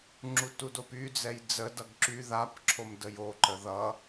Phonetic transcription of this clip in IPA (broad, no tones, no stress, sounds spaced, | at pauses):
ŋ͡ǁ u t u d o p y d͡z ɛ j d͡z ə d ʌ ɡ ǁ y ð a p ǁʰ o m d ə j o ǃ ə ð ʌ